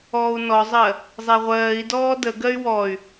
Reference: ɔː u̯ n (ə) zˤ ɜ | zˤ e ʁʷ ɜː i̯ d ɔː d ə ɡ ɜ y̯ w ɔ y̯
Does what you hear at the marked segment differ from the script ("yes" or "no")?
yes